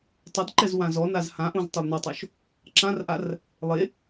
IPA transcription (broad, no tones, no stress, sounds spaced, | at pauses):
tˤ ʌ d ǃ ɛ z w ã z ɔ n a z h ã ʔ õ z tˤ e lˠ n ɔ tˤ o ʃ | ǁ ã r ʔ a r | lˠ e